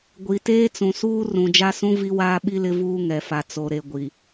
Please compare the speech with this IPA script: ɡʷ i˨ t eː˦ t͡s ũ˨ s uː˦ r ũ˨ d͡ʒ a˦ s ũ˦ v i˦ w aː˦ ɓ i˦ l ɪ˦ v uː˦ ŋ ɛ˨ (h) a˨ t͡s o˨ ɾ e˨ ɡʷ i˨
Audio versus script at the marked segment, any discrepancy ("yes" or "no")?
yes